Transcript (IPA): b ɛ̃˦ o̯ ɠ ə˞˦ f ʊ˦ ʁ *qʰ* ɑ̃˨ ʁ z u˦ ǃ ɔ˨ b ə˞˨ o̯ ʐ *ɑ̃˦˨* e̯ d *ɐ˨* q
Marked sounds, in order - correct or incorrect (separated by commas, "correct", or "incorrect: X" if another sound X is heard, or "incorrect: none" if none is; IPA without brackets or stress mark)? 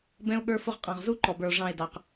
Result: incorrect: qʼ, correct, incorrect: ɑ˨